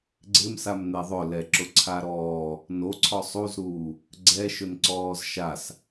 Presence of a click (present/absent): present